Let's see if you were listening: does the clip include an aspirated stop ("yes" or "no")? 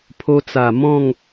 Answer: yes